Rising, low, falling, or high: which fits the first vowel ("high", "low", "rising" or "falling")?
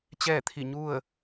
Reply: falling